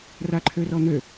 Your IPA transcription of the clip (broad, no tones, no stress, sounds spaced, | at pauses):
r a ǃʰ ø r ɔ n̪ ø